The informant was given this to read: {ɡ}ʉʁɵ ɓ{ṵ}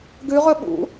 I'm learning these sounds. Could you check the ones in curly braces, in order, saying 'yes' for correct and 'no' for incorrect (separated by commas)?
yes, yes